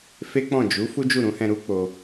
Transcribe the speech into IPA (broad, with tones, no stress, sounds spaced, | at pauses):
f e˦ k͡p ɔ̃˦˨ d͡ʒ u˨˦ f u˦ d͡ʒ u˦˨ ɾ ũ˨˦ h ɛ̃˧ ɾ u˦ k͡p o˧